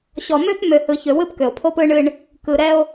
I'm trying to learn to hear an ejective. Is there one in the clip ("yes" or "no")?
no